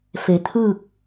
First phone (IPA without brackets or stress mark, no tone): f